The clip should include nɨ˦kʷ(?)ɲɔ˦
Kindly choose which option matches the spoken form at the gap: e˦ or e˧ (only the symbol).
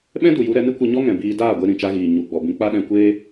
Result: e˧